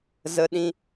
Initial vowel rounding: unrounded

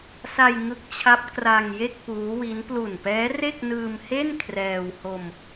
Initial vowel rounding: unrounded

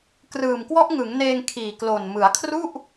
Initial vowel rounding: unrounded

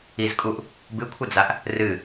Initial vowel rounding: unrounded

